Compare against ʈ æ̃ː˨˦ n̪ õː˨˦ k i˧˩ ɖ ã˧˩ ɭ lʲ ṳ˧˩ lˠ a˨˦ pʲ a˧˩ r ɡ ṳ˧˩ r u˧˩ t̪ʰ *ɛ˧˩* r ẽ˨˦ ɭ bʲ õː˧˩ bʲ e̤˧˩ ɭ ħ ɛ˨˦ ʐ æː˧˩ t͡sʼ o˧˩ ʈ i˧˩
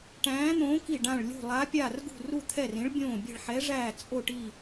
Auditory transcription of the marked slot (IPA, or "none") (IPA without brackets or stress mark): ɛ˧˩